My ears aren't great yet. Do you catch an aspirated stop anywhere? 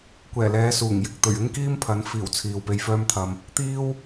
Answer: yes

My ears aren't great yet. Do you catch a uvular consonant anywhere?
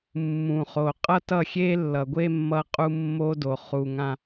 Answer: yes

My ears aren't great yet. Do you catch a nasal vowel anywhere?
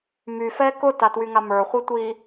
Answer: no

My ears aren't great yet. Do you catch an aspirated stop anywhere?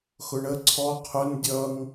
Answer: yes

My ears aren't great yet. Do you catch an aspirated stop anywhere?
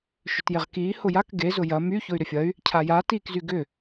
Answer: yes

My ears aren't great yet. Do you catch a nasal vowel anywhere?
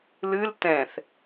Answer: yes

